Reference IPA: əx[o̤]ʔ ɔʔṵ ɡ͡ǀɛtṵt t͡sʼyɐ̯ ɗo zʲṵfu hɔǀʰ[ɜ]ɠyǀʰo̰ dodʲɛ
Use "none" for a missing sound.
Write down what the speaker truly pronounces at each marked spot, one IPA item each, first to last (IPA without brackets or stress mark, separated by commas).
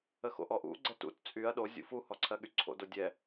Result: o̰, ɜ